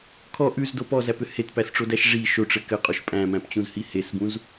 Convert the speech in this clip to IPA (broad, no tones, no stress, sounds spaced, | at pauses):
kʰ ɔ ʔ ʉ z d o p ɔ z æ p ʏ h e t p æ s ʈ͡ʂ o d æ ʃ ʐ i ʃ o ʈ͡ʂ ɘ k ɘ qʼ o ʃ pʼ æ̃ m æ̃ p t͡ɕ ũ z h i h e s b ũ z